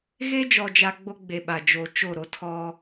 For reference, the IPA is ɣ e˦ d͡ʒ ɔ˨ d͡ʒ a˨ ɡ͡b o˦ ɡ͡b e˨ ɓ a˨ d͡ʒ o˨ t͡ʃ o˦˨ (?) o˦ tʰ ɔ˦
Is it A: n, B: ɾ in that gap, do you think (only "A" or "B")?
B